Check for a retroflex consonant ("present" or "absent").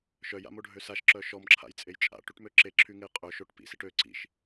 present